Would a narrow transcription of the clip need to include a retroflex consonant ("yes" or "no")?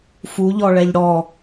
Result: yes